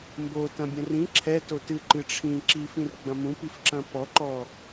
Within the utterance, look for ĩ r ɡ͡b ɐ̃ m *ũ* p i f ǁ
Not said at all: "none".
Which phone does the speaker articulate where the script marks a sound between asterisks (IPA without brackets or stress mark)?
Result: ũ